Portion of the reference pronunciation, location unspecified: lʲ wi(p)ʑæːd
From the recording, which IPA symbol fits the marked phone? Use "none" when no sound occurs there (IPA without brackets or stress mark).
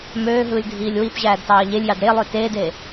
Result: p